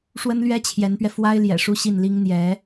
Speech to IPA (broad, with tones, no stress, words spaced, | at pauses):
ʂwə˥nlɥɛ˥t͡ɕʰjɛ˧˥npɥɛ˧ fwa˥ɪ̯ljɛ̰˨˩ʂu˥˧ɕi˥˩n li˥ŋ n̪jɛ˧˥